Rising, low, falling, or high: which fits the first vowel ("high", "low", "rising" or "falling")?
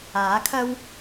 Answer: rising